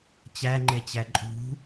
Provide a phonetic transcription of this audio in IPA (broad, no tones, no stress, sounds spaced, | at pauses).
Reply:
t͡ɕ æ ŋ͡ǃ e t͡ɕ æ ǃʼ ṳ